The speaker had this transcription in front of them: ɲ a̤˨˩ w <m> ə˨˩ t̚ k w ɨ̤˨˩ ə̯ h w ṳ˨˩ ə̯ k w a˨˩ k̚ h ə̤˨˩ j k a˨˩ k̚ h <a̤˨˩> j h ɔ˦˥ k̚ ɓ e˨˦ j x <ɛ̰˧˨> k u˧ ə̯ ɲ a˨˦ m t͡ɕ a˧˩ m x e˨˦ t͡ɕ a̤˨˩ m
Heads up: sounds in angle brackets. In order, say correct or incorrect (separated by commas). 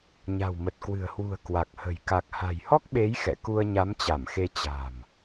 correct, correct, correct